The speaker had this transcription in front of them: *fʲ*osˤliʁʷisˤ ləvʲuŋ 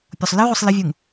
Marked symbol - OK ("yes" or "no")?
no